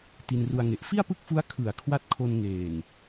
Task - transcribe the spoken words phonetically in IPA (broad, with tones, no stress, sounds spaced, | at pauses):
t i˧ n r u˧ a̯ ŋ e˨˩ ʔ f i˥˩ a̯ p ɯ˥˩ k̚ f u˦˥ a̯ kʰ ɯ˩˦ a̯ kʰ w a˦˥ t̚ kʰ o˧ n ŋ eː˨˩ n